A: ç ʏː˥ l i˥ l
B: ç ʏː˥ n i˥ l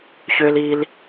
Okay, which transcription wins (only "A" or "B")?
A